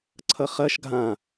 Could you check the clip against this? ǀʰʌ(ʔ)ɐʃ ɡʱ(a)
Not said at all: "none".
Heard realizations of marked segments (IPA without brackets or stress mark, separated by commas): χ, ã